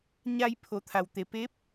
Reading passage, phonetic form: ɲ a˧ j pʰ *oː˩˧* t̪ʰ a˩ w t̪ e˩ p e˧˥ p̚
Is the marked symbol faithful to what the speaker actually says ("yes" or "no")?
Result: no